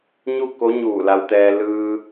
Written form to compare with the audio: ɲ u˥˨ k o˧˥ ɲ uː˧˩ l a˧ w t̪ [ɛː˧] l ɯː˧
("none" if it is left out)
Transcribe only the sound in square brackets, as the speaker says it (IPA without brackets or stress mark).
ɛː˧